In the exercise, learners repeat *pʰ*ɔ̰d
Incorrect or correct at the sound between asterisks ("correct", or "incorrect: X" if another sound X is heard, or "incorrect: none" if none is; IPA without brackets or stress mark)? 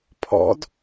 correct